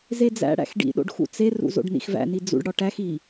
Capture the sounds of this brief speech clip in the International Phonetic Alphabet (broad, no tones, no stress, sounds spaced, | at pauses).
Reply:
z e d͡z æ̰ ɽ æ̰ x ɖ ḭ ɗ o̰ ɖ x ṵ t͡s e r ṵ z o̰ ɖ n ḭ x v æ̰ n i d͡z ṵ ɖ ɽ ɒ ʈ æ x i